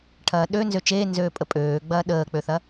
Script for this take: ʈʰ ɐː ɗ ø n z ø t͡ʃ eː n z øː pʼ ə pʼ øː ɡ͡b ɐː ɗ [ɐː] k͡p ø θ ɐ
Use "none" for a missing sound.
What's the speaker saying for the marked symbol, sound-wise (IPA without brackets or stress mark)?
əː